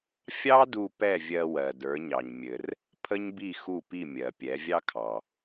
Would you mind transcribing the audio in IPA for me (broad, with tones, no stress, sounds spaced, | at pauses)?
fʲ ɑ˥ d u˧ p ɛ˥˩ vʲ ɜ˧ w ɜ˩ d ə˞˩˥ ɲ ɑ˩ ɲ mʲ ɘ˩ r | pʰ ə˥ ɲ b i˥˩ x u˥˩ p i˥˩ mʲ ɜ˩ pʲ ɛ˩˥ vʲ ɑ˥ kʰ ɑ˩